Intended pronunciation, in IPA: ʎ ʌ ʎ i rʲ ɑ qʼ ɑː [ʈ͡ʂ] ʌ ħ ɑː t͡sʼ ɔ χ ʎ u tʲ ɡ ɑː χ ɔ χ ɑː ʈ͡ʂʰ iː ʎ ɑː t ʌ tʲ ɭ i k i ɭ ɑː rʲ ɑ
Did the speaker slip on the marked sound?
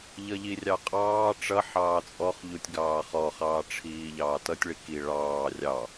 no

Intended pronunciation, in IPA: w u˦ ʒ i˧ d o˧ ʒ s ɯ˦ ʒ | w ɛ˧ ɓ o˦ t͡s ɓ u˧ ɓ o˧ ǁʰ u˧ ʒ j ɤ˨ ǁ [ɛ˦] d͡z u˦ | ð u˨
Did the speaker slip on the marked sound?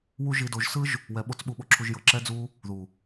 no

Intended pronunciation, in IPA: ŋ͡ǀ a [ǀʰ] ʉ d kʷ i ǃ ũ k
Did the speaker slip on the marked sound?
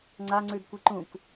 yes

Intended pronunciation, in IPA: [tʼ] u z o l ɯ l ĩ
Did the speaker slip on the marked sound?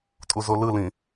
no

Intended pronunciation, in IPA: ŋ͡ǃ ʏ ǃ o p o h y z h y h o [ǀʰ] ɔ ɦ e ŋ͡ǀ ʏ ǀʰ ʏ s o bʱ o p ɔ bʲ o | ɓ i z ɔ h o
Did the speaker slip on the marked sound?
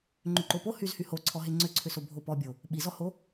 no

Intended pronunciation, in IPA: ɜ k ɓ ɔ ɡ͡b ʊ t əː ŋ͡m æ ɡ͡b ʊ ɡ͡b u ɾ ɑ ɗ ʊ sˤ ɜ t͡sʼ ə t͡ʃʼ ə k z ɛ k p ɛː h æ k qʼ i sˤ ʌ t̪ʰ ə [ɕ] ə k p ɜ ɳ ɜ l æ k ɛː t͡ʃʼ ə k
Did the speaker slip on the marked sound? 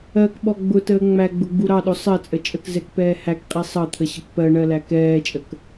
no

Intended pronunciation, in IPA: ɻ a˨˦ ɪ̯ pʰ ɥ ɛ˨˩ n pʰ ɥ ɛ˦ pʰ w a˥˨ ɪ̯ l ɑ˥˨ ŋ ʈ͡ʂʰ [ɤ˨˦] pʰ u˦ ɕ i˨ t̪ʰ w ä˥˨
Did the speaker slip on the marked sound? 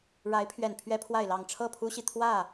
yes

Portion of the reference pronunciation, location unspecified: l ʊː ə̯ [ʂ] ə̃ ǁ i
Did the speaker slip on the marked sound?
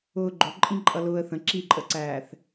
yes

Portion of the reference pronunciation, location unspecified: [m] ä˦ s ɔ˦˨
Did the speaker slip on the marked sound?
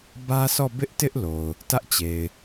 yes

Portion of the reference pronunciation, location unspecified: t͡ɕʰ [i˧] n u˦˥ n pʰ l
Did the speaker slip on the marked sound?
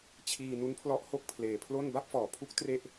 yes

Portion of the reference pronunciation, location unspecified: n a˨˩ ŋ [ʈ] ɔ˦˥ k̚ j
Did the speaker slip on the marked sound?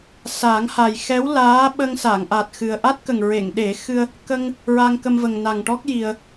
no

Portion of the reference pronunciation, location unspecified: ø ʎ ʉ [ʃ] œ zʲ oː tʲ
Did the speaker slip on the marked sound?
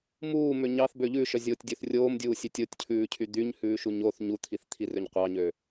no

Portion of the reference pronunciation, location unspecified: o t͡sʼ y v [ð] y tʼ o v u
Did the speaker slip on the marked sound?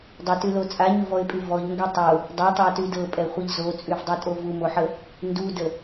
yes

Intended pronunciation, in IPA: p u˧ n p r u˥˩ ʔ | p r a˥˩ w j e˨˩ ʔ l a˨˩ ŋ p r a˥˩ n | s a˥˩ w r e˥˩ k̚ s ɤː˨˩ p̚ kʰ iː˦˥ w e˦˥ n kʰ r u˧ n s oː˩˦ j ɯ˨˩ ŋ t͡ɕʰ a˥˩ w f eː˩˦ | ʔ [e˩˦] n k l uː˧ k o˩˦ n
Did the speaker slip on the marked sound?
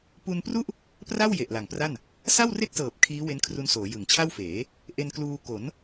yes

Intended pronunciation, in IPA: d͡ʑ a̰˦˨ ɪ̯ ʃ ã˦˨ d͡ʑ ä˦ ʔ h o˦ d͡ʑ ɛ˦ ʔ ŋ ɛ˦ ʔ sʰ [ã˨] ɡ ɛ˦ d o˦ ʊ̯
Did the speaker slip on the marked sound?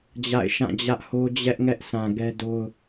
no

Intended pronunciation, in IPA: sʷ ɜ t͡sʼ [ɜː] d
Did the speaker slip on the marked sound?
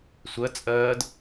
no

